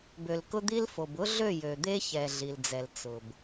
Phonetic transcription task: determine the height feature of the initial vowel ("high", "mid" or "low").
mid